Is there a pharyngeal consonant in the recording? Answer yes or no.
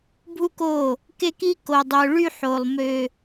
yes